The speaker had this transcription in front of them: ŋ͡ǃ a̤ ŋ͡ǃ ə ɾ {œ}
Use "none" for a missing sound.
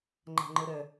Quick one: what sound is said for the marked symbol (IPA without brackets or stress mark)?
œ